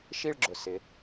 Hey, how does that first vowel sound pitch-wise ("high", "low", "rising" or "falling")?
falling